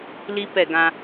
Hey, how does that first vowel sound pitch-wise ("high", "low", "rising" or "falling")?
high